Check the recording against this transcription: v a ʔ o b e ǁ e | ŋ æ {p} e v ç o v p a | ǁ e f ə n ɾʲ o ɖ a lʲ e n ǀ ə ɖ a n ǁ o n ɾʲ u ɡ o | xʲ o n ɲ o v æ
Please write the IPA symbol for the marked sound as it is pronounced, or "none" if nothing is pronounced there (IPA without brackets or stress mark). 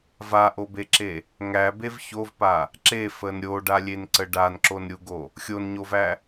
b